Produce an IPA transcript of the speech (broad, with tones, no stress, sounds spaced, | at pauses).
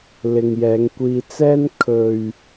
l ɪ˨ ŋ j ɛː˨˧ ŋ kʷ iː˧ t͡s ɛː˥ n kʰ ɵ˨ ɥ